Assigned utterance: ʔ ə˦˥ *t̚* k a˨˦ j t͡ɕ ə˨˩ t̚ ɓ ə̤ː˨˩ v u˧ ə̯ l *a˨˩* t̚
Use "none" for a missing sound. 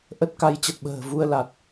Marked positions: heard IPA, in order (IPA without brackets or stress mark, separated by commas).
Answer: t̚, a˨˩